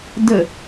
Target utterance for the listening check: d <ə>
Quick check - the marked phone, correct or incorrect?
correct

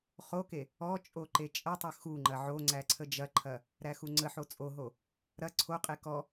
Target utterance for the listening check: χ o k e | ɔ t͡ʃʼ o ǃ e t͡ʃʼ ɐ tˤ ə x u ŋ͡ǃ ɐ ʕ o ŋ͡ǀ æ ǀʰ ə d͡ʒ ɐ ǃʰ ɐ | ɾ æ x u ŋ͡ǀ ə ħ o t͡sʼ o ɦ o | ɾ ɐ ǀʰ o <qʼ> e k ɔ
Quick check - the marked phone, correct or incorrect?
correct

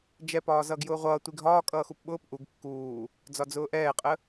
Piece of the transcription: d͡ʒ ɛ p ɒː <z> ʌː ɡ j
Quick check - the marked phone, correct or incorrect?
correct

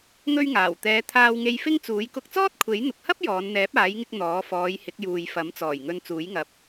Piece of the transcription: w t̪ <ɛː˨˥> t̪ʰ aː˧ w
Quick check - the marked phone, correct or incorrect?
incorrect: ɛː˨˧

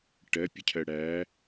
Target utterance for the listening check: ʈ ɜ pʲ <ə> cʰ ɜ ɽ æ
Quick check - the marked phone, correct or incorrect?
correct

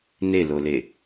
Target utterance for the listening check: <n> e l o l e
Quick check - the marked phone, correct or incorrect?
correct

